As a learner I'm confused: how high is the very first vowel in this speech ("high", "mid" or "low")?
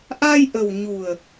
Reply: low